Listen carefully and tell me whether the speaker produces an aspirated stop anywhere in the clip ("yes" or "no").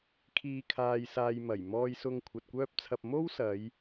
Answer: yes